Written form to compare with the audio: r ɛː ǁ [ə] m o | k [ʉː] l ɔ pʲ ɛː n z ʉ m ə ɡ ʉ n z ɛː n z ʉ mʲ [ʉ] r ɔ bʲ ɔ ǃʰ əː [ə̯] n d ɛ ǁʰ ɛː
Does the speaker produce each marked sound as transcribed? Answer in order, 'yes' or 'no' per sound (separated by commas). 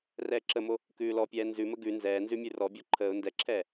yes, yes, yes, no